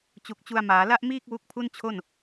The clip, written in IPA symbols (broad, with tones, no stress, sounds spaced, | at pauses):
t͡ɕ u˨˩ k̚ t͡ɕ u˧ a̯ m aː˩˦ l a˥˩ ʔ m iː˥˩ k̚ w u˦˥ k̚ pʰ u˥˩ n t͡ɕʰ o˥˩ n